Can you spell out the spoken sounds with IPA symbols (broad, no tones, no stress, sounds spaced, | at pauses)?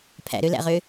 pʰ æ̰ ɾ ø l æ̰ ʁ ø